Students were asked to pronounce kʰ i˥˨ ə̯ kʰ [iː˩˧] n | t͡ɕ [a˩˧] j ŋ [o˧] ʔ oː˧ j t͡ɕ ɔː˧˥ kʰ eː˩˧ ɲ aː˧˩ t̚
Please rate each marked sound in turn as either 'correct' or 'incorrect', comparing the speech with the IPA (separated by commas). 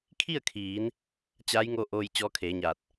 correct, incorrect, correct